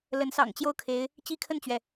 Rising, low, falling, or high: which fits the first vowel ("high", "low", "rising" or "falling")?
rising